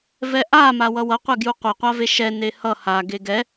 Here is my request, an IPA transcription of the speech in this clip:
vɛʔa mawʌwʌ qʷɛɡjuqʷʌ qʷaveʃɛ nehʌ ha ɡeɡɛ

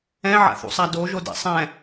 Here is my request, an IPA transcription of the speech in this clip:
ɛ̃ʕa̰θṵsˤa doʒodɛ̰ sˤɛ̃

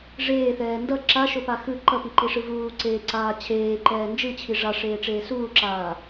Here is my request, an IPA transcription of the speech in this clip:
ʐeːθɛː ndʌ ǁaʃopa xɯ ǃʌpiǃiʂɯ vuːǀeːǀaː t͡ɕʰeːǃɛː nd͡ʒɯt͡ɕʰi ʐaʂeːʈ͡ʂeː suːǁaː

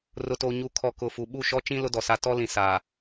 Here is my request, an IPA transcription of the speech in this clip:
rʊ˨toː˨ ɲu˨kʰɔ˨ kʊ˨fu˨ ɓu˦˨ʃɔ˦t͡ʃĩ˦ lʊ˦dɔ˨sa˦ tɔ˦ lĩ˨ saː˨

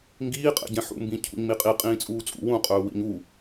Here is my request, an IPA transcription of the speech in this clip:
ŋɡiːqʼɛ̰ɟɛ̃ ħṵmbĩ cʰṵɲmiqʼi qʼĩːt͡sʼuːt͡sʼṵ wũqʼɵː wḭɲu

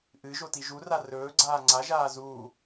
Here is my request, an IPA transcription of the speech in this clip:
ʔɨ ʒotiʒura rɵːɡ͡ǀaː ŋ͡ǀaʒaː zuː

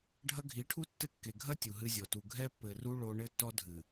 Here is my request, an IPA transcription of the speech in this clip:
ɖʱɐ˦ ɡʱi˨˦ʈʰu˦ tːɘ˦˨kːe˨ ɡʱɐ˦ tʲu˨ɦɨ˦zʲɔ˨ tu˨ ɡʱɛ˦pːɘ˨ru˦ ɭo˦ ɳɘ˦tːɔ˦dʱɨ˨

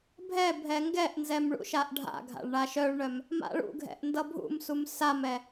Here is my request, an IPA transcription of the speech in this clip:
bʱɛbʱɛ ŋɡɛʔnzɛm ɭṵʃaʔɖʱa̰ɡʱa̰ɭ ɳaʃœɭɳœm | ma̰ɭṵɡʱɛ̰ʔ ndʌbʱṵmsum samɛ

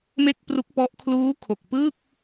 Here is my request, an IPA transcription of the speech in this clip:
me˥˩k̚pru˦˥k̚pɔ˦˥ʔ kʰluː˦˥kʰo˨˩k̚pɯː˥˩k̚

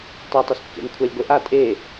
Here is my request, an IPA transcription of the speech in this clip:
tˤatˤ øskːḛn kʷʰalʲɡʷeʔa tʼe

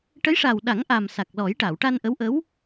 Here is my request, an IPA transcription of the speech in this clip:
ʈə˧˥jʂa˨˩wɗa˨˩˦ŋ ʔa˨˩msa˨˩k̚lɔ˨˩˦j ʈa˨˩˨wʈa˧nʔə˧˥wʔə˧˥w

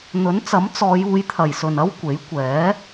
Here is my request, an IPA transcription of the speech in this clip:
n̪ɵ˨˥nt͡sɐ˨˥m t͡sɔː˨˧juː˨˧j t̪ʰɐ˨˩jsɵ˨˩nɐ˥w kʷe˨˥jkʷɛː˨˥

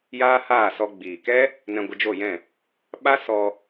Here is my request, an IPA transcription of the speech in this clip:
jaː˦ haː˦˨sɔ˧ ɡ͡biː˨kɛ˦ | nɛ̃˧ɡʷə˧d͡ʒo˦˨jɛ̃˦˨ | ɓa˦ sɔ˧

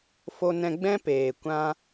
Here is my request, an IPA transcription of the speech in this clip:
fo˧nɛ̃˧ɡ͡bɛ̃˦ peː˨kʷã˦

